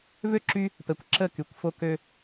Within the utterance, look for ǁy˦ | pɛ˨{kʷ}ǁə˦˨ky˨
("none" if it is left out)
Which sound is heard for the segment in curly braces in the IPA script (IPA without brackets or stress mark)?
kʷ